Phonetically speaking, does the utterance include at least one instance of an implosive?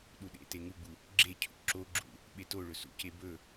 yes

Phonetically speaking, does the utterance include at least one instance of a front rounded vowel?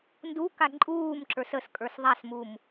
no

